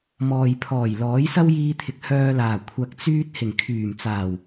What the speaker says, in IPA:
mɔː˨jpʰɔː˨˩j lɔː˨˥jsɐ˥wjiː˧t̪ʰɪ˨k̚ hœː˧laː˨˩ kʷʰɐ˧k̚t͡syː˥t̚ hɪ˨˩ŋkʰyː˨˩mt͡saː˨˩w

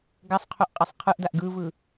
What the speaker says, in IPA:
ɡasˤqʰoʔqʼɛsˤ qʰɯʔdaʔ ɡɯvɯ

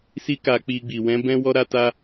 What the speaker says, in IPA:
si˦ka˧k͡pi˧ɡ͡bi˨ wɛ̃˨˦bɛ̃˦ wɔ˦ɾa˦ta˦

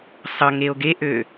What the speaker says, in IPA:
sˤʌ ŋeo̯ɡeʔø

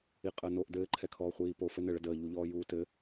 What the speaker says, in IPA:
iqʼəːnoʔ dɘːǃʰɛkʰɔː χʷiːpo fɘnɘɭə dəːʎuʎɔː juːtɘ

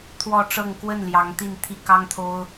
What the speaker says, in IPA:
t̪ʰwɔ˥˧ʈ͡ʂɤ˥˧ŋ kwə˥˩n ljɑ˧˥ŋt̪i˥˩nt̪ʰi˥ kɑ˥ŋt̪ʰo˥ʊ̯

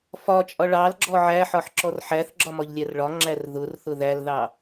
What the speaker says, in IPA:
fɒt͡ʃʼɒ ɭɑlɡ͡ǁɔ ʕæħɒħǁɔr ħæθɡ͡ǁɒmɒʎlʲær ɭɒŋ͡ǁær ðʊrθʊ ðælðɑ

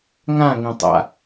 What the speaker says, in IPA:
ŋãŋẽtˤa̰

